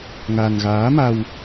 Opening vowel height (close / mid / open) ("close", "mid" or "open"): open